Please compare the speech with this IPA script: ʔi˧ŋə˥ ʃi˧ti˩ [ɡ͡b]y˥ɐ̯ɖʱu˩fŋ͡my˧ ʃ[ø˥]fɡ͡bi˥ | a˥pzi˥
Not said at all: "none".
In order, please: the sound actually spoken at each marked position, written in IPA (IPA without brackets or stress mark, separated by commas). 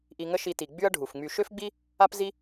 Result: ɡ͡b, ø˥